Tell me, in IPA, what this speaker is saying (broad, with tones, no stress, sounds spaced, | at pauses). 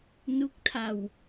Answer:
n u˦˥ k̚ tʰ a˧ w